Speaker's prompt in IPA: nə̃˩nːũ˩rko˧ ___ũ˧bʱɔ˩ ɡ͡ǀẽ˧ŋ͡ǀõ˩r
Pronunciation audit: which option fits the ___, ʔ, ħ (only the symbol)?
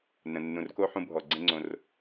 ħ